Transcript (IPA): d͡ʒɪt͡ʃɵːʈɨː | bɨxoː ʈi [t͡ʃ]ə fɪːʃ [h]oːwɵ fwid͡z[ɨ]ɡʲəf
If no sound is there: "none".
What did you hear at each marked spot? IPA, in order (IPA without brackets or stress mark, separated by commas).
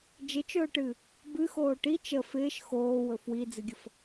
t͡ʃ, x, ɨ